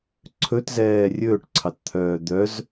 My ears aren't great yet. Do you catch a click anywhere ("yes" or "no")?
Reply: yes